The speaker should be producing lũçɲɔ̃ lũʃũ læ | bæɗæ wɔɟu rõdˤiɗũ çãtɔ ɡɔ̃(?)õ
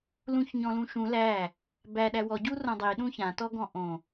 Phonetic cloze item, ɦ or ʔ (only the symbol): ʔ